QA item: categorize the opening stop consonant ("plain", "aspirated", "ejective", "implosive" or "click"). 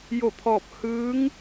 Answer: aspirated